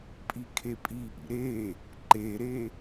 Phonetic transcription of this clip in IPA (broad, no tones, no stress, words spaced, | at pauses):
pʼikʰepʼiʔḭ ɾe | ǃeɾe